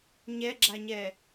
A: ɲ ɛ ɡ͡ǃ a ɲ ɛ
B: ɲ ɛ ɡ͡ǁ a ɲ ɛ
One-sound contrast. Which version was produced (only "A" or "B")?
B